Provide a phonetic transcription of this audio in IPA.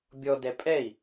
bʲɔdɛ pʼɛi̯

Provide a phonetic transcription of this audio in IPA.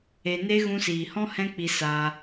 e˧ne˦ ɣũ˧siː˨hɔ̃˦ hɛ̃˦k͡pi˧ sa˧

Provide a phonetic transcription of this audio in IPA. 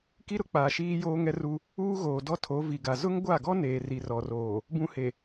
ki˦ɾʊ˦k͡paː˨ ʃiː˦joː˦ ŋɛ˦ru˦ | uː˦ɣoː˨dɔ˦ tʰo˨˦vi˨ɡa˨ zʊ˦ŋɡʷa˦˨ɡɔ˦ neː˨ri˨ rɔ˨roː˨ | bũ˦he˨

